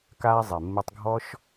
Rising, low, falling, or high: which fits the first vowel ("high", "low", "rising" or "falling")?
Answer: high